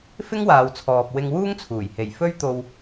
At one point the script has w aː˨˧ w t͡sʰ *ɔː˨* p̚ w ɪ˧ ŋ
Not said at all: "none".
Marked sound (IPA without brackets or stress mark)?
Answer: ɔː˨